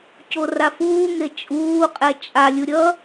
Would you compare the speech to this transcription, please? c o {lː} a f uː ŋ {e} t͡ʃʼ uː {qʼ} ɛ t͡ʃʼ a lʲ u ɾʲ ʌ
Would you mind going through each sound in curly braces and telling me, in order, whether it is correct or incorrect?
incorrect: r, correct, correct

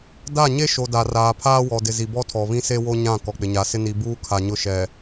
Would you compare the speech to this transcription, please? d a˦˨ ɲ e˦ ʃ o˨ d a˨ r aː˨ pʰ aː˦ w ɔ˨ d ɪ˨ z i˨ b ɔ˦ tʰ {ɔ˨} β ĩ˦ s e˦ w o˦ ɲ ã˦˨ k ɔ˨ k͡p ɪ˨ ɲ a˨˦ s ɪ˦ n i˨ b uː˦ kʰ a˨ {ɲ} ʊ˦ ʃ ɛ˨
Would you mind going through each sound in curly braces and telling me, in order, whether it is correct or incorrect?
correct, correct

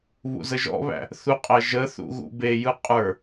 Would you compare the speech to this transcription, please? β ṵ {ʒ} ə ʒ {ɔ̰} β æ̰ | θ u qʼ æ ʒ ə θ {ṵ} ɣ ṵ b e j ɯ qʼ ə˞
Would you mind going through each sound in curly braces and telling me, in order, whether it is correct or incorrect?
incorrect: z, correct, correct

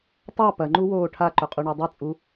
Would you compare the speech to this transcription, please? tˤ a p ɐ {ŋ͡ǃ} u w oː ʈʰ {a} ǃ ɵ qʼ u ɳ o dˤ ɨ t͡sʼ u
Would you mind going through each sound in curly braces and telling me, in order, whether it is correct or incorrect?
correct, correct

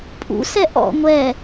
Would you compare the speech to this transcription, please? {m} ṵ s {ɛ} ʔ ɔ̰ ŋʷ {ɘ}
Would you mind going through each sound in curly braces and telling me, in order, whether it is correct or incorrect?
incorrect: pʼ, correct, incorrect: ɛ

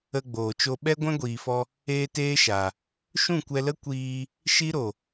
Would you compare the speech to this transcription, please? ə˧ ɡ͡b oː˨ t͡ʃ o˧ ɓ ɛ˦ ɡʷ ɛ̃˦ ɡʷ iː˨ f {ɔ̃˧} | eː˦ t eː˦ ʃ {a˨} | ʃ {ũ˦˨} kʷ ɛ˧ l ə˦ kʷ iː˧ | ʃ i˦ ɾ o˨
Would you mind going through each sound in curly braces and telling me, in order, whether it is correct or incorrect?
incorrect: ɔ˧, correct, correct

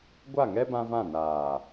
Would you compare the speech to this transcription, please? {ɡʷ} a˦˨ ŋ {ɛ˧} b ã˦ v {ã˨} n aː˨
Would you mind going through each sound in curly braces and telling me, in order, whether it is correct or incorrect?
correct, incorrect: ɛ˦, incorrect: ã˦˨

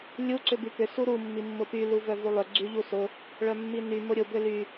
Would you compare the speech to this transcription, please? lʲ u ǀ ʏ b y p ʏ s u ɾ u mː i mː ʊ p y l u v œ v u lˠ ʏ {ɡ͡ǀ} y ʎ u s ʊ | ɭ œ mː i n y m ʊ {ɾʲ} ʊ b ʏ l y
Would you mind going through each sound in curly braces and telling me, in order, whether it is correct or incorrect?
correct, correct

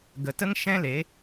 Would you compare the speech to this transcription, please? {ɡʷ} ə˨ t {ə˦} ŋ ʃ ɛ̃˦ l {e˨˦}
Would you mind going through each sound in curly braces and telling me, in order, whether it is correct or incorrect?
incorrect: ɡ, correct, correct

